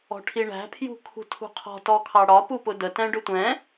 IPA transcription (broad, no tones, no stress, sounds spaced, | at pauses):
ɔ̤ ʈʰ i ɳ æ̤ pʰ j ṳ kʰ ṳ tʰ ṳ qʰ ɔ̤ t ɔ kʰ ɑ ɽ ɒ p u p ʊ d ə t ɛ̃ ɖ ʊ tʷ ɛ̃